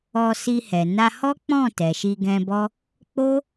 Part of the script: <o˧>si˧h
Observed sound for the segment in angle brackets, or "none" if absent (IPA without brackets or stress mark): ɔ˧